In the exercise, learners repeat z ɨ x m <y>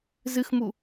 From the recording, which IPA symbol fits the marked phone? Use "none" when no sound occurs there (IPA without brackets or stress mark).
u